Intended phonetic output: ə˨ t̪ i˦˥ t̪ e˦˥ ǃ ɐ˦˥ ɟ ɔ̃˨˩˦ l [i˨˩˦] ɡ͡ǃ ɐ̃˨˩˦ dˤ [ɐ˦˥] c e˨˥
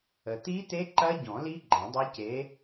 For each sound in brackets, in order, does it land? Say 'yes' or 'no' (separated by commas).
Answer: no, yes